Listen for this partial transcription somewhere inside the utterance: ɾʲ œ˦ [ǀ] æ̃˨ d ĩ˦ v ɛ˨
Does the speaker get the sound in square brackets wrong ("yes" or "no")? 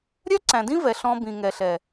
no